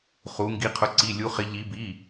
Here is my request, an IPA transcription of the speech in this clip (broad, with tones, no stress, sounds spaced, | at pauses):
χ u˧˥ ŋ ɡ i˧˥ qʰ ʊ˧˥ ǀ i˧˥˧ lʲ u˧˥ χ ɪ˧˥ ʎ i˧˥ b i˧˥˧